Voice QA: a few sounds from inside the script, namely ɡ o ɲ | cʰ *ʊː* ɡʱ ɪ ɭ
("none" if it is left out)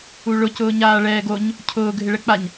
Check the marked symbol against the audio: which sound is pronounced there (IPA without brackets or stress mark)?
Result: ʊː